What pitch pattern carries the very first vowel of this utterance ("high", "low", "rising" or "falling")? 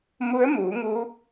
rising